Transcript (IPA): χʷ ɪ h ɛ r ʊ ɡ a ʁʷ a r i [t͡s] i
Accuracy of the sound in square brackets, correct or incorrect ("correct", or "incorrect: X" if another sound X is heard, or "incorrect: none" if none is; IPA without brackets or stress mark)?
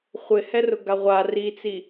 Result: correct